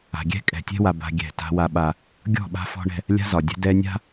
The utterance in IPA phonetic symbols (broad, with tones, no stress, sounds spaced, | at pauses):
a̤˨ ɡʲ ɛ̤˦ kʼ ɛ̤˨ tʲ ɛ̤˦ w a˨ b a̤˦ ɡʲ ɛ̤˦˨ t a̤˦ w a˦ ɓ a˦ | ɡʲ ɔ̤˦˨ ɓ a̤˦ f ɔ̤˦ ɳ ɛ̤˦ | lʲ a̤˦ z ɒ˨ dʲ ɛ̤˦ d ɛ˦ nʲ a̤˦